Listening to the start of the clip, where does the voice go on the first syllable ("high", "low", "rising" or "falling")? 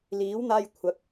rising